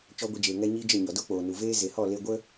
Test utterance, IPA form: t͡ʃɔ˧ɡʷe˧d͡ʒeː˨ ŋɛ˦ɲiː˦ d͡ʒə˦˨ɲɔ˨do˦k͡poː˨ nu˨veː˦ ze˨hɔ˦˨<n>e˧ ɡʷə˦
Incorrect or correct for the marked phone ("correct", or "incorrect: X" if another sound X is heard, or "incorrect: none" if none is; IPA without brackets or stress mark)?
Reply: incorrect: l